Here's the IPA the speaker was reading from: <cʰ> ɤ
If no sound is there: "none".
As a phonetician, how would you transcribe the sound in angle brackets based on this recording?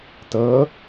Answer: t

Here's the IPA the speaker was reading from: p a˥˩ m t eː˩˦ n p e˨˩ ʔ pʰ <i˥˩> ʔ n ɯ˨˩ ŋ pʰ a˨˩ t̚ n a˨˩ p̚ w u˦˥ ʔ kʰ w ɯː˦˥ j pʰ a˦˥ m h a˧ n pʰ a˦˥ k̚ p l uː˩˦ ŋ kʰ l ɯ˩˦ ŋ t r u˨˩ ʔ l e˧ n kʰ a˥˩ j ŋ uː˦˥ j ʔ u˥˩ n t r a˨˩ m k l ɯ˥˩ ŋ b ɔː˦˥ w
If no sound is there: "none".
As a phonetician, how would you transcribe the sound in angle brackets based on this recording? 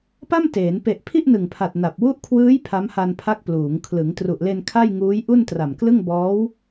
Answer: i˥˩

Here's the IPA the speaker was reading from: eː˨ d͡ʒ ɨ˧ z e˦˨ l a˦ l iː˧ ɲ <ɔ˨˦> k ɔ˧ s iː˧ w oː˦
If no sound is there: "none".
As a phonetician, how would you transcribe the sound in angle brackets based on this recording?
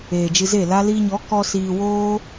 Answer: ɔ˨˦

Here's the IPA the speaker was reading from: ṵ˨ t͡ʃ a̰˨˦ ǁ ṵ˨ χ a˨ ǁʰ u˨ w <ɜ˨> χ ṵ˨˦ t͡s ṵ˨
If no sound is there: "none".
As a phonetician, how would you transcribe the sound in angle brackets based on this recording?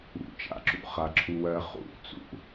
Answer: ɜ˨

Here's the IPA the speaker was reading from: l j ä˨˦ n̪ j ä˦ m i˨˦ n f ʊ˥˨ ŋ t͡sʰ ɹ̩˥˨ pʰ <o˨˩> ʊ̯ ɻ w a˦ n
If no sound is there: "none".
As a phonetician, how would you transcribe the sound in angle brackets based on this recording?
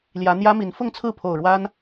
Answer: o˨˩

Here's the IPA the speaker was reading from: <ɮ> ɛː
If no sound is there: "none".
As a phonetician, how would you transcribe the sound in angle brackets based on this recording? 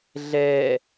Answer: ɮ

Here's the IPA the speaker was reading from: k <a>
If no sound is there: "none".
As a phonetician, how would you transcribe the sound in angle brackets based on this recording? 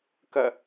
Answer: ɐ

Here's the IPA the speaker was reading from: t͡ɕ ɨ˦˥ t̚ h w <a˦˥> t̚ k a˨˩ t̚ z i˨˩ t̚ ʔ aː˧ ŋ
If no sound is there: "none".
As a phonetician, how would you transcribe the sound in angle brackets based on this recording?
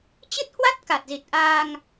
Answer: a˦˥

